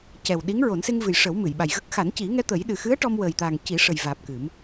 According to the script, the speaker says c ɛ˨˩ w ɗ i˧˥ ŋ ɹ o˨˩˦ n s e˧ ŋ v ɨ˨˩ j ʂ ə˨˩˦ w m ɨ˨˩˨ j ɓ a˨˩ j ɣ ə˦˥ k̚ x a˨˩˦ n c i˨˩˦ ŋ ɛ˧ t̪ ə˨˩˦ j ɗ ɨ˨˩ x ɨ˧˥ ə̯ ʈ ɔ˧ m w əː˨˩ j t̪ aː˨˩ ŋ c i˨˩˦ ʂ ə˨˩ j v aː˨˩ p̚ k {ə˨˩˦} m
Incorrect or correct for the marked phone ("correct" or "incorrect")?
incorrect